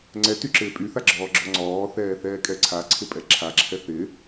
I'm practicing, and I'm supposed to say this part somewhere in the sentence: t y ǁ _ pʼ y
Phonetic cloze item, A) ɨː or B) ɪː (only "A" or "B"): B